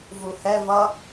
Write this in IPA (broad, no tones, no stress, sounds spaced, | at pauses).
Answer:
v u h ɛ v ʌ